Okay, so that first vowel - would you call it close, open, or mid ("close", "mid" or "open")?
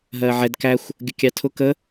mid